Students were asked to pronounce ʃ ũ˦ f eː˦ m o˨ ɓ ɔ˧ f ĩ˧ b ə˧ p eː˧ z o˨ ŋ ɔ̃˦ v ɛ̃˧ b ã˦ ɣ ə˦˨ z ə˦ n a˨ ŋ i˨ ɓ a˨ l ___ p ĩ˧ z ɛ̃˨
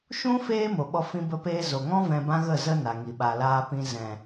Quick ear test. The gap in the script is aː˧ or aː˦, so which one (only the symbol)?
aː˧